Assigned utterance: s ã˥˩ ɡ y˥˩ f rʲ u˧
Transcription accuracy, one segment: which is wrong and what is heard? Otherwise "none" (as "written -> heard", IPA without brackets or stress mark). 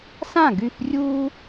none